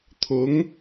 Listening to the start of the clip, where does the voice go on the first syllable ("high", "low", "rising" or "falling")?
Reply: rising